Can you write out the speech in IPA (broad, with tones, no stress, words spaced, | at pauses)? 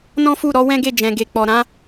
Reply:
nɔ̃˦fu˦˨ɾɔ˨˦ wɛ̃˦ɡe˦˨ d͡ʒɛ̃˨ɡe˨k͡pɔ˨ ɾã˨˦